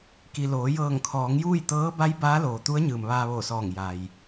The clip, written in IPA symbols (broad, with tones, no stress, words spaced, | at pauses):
ki˩loː˩˧ jɤː˧˩ŋkʰɔː˩˧ŋjuː˥˨j t̪ɤː˧˥ ba˧˥j baː˧˥loː˩t̪u˧˥ə̯ ɲɯː˩mʋaː˧ʋoː˧˩sɔː˧˩ŋ ja˩j